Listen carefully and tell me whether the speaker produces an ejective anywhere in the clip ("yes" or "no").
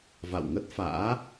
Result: no